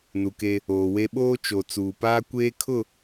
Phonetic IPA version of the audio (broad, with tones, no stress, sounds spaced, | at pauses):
n u˨ k e˦ | oː˨ w e˦ ɓ oː˦ t͡ʃ o˨ t͡s uː˨ p aː˦ kʷ eː˦ kʰ ʊ˦˨